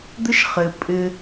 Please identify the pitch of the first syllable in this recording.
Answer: high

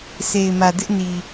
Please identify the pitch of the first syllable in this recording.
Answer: low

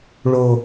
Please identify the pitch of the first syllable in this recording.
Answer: high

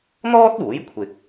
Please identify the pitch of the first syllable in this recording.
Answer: high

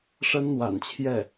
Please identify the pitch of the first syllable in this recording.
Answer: high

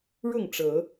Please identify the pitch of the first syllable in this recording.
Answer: falling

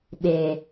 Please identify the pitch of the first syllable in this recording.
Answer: low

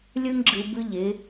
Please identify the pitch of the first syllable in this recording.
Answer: high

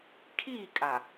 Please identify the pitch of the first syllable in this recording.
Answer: falling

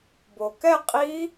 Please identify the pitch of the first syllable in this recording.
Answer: low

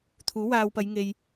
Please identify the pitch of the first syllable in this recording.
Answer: rising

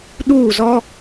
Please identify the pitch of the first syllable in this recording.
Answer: falling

